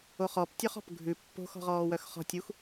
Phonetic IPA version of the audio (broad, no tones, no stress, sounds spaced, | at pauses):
o χ ɔ p tʲ œ χ ɔ̤ p ɡʱ ʉ pː o̤ x ɔ̤ ʁ ɔː w œ x χ ɔ̤ tʲ u x